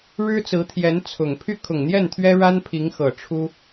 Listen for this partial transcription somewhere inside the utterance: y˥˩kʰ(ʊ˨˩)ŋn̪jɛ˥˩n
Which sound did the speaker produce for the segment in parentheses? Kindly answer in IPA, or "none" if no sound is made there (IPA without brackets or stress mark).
ʊ˨˩